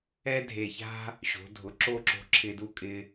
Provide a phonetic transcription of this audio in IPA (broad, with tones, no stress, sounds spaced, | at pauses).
ɛ˥ dʱ e˧˩ ç a̤˥ | ɕ o̤˩˧ dʱ ʊ˩˧ ǁ o˥˧ ǁ o̤˧ ǁʰ ɪ˧ d u˥ kʼ ɪ˥